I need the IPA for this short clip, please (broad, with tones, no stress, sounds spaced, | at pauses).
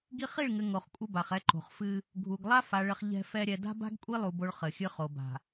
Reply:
ɡ i˦ χ i˦˨ ɭ ŋ ɘ˨ ŋ o˨ χ kʷʼ ɘ˦ b a˨ χ ɛ˦ ǃ o̤˨ χ f ɨ˦ | ɡʱ u˨ ɡ lˠ a˦ f a˨ ɭ ɘ˨ χ ʎ ɛ̤˦ f ɛ˦ ɾʲ ɛ˨ d a̤˦ b a̤˦ ɡ kʷʼ i˦ lˠ u˦ b o˦ ɭ χ ɘ˨ xʲ ɨ˦ χ o˨ b a̤˨